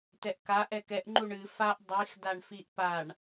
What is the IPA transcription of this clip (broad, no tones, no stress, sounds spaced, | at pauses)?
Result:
t ɛ ʔ k a ʔ ɛ k ɛ ʔ ŋ͡ǃ u ɳ ɨ f a ʔ dˤ i x d a ɳ f i ʔ p a ɳ